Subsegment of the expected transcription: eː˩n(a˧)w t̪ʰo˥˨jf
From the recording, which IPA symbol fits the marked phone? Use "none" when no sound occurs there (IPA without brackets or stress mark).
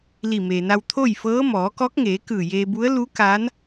a˧